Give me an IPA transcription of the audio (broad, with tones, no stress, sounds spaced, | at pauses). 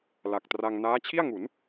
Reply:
l a˨˩ k̚ t r a˧ ŋ n aː˦˥ t͡ɕʰ i˥˩ a̯ ŋ u˩˦ n